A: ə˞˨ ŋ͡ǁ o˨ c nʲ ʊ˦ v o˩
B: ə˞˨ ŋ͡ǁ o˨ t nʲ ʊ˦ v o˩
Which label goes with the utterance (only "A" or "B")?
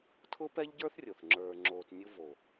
B